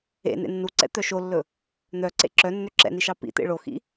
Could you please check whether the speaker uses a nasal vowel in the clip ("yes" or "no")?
no